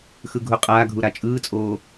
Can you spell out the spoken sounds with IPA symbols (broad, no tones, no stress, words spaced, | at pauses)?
xɯɡʱuqʼaːɡʱu ɾat͡ʃʼɯːt͡sʼoː